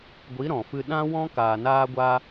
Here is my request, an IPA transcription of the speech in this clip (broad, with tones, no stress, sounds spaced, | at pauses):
ɡʷ i˨˦ ɾ ɔ̃˨ f ɨ˧ ɗ ã˦ w ɔ̃˦ k aː˨ n aː˧ ɡʷ aː˧